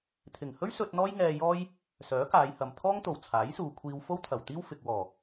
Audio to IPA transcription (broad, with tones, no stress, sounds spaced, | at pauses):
t̪ʰ ɪ˨˩ ŋ h ɵ˥ ɥ s ɵ˧ t̚ n̪ ɔː˥ j ŋ ɛː˧ j ɔː˥ j | s œː˨˥ k aː˨˧ j h ɐ˨ m t̪ʰ ɔː˥ ŋ t̪ o˨˩ w t͡sʰ aː˨˥ j s uː˨ kʷʰ iː˧ w f o˥ w t̪ʰ ɐ˨˩ w t̪ iː˥ w f ɪ˨ k̚ w ɔː˨˩